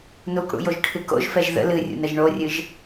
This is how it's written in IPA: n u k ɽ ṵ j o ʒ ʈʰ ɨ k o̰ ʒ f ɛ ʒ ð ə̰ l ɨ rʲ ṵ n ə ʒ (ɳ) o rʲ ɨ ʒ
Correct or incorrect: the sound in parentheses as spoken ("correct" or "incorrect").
correct